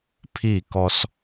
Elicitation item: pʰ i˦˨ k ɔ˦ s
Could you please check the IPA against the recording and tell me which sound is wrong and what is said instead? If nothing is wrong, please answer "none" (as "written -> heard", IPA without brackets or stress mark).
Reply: none